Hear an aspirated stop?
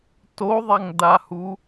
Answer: no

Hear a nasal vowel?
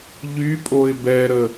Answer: no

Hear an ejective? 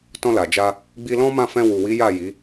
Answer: no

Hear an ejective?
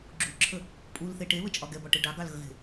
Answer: yes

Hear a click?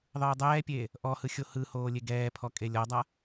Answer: no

